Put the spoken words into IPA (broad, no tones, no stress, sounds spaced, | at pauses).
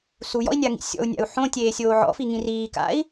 s u j ɔ̰ i̯ nʲ a ŋ ḭ sʲ ɔ̰ u̯ nʲ a̰ u̯ ħ õ tʲ eː sʲ oː ʕ ɔ̰ f i ŋ ĩ r iː k a̰ i̯